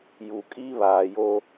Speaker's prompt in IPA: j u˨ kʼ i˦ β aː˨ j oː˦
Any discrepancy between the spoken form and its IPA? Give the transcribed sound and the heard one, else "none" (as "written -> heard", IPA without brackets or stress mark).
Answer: none